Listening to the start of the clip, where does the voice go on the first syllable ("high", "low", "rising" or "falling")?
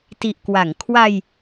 low